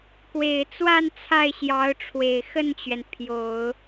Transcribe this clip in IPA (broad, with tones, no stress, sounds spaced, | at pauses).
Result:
k w e˨˩ ɪ̯ t͡s w a˥˧ n t͡sʰ a˥˩ ɪ̯ ɕ j ɑ˧˥ ʊ̯ ʈ͡ʂʰ w e˨˩ ɪ̯ x ə˥˩ n t͡ɕ ɥ ɛ˩ n pʰ j o˨˩˦ ʊ̯